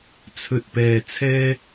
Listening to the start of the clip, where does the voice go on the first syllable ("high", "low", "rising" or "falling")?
low